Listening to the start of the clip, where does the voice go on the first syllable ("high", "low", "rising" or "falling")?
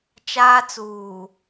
high